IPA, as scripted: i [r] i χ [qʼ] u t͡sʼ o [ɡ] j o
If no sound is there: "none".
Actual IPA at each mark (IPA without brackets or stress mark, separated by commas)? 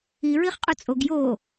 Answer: ɹ, qʼ, ɡ